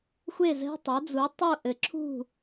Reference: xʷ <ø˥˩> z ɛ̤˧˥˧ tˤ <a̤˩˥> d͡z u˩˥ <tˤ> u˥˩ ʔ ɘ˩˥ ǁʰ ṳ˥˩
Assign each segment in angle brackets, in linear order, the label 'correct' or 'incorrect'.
incorrect: e˥˩, incorrect: a˩˥, correct

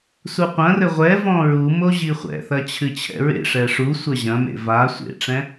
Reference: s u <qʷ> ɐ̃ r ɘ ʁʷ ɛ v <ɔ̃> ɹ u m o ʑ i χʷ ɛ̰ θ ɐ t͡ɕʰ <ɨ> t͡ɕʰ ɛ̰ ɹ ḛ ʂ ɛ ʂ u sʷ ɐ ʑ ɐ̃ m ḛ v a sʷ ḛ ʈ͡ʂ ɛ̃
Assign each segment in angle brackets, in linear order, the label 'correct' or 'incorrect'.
correct, correct, correct

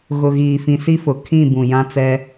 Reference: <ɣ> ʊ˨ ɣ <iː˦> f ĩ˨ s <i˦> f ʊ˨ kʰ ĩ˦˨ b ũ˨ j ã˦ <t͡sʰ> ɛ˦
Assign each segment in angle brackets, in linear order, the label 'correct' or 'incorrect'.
correct, incorrect: iː˨, correct, incorrect: t͡s

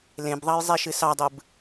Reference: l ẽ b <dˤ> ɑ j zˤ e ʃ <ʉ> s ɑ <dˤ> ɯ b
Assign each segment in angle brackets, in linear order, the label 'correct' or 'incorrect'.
incorrect: ðˤ, incorrect: ɨ, correct

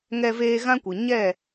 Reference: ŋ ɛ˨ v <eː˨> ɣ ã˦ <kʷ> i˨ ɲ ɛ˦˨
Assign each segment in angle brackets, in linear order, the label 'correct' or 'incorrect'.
correct, correct

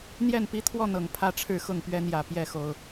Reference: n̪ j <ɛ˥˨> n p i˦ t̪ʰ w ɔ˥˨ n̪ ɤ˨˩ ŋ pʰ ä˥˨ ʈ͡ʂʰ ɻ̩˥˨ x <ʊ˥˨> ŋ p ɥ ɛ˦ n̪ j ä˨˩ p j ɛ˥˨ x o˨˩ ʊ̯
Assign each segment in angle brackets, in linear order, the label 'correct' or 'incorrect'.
correct, correct

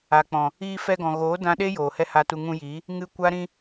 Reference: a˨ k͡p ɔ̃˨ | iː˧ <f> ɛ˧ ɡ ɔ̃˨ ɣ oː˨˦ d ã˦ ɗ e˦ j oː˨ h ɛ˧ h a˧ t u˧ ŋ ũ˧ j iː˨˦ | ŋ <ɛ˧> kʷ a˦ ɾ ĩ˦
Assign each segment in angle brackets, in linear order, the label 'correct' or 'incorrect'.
correct, incorrect: ɨ˧

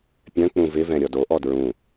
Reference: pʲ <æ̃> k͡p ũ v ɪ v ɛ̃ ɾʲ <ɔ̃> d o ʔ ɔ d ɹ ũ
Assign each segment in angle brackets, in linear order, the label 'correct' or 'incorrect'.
incorrect: œ̃, incorrect: ɔ

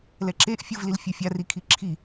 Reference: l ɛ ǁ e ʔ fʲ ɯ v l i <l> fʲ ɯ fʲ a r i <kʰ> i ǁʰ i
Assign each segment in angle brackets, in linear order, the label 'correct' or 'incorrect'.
correct, correct

